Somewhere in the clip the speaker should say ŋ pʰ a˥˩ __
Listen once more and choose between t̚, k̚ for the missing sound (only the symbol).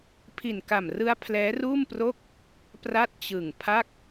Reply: k̚